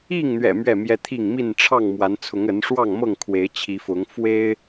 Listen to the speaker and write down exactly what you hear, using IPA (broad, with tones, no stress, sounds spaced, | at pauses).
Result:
i˥˨ ŋ n̪ ɥ ɛ̰˨˩ m ɥ ɛ˥˨ m j ɛ˦ t̪ʰ i˥˨ ŋ m i˥˨ n ʈ͡ʂʰ ɑ˥˨ ŋ m w a˨˦ n t͡sʰ ʊ˨˦ ŋ ə˨˦ n ʂ w ɑ˥˨ ŋ m ɤ˥˨ ŋ kʰ w e˨˦ ɪ̯ t͡ɕʰ i˨˦ f ʊ˨˦ ŋ f w e˦ ɪ̯